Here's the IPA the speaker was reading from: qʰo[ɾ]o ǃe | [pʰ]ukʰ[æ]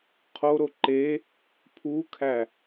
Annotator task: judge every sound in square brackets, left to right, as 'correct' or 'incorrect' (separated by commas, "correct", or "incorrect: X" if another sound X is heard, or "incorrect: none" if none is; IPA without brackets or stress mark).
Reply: correct, correct, correct